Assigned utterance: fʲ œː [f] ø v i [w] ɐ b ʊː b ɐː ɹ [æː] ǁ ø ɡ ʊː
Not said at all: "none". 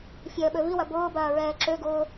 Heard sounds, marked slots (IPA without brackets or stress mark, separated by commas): ɓ, w, ɛː